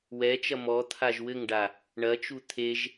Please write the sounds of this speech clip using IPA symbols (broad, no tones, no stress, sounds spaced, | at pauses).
w ɛ t͡ʃ ɐ m ɔ t̪ʰ a ʒ w ɘ ŋ ɖ a | ɳ ɐ t͡ʃ u t̪ʰ e ʒ